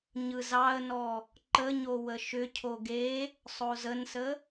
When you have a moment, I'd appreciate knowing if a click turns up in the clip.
yes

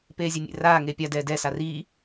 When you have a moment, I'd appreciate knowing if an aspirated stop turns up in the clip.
no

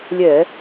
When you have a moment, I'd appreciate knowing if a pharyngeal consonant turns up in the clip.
no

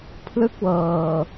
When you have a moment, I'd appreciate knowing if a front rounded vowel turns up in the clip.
no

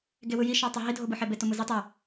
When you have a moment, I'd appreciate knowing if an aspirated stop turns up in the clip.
no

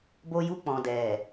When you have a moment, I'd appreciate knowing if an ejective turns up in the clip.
no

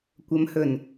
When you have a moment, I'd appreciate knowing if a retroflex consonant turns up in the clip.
no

